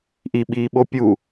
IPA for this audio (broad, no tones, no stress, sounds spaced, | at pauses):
ʔ i ɓ iː ɓ o pʲ u